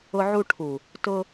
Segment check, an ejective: absent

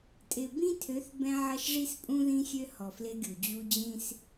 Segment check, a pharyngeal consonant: present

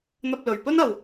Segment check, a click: absent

